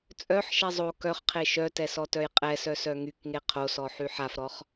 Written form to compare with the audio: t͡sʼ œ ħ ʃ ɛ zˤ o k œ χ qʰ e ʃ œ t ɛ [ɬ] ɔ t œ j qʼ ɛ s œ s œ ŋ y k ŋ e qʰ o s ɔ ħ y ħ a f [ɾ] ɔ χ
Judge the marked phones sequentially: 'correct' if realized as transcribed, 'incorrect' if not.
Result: incorrect, correct

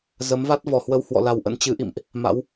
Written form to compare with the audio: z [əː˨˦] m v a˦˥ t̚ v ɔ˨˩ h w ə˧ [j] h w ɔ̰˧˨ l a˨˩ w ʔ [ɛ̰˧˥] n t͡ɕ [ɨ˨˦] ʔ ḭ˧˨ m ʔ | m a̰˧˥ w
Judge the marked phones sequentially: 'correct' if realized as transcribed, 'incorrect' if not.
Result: incorrect, incorrect, incorrect, correct

